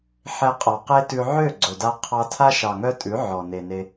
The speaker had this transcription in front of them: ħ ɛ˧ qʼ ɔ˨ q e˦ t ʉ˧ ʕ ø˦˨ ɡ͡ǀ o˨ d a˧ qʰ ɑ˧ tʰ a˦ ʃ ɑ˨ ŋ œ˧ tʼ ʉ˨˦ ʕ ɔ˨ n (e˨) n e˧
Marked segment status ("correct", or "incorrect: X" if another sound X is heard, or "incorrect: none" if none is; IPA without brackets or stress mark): correct